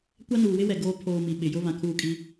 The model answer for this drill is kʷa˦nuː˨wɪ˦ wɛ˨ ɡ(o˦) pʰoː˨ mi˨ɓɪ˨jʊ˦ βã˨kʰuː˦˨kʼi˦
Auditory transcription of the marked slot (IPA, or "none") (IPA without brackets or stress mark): oː˦